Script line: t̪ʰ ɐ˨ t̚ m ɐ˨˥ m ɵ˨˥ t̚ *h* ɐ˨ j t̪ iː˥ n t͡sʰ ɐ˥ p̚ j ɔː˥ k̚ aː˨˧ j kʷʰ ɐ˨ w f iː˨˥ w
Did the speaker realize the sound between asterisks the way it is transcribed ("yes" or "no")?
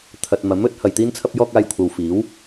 yes